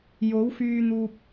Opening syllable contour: rising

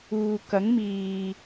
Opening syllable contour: low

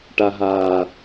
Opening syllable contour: low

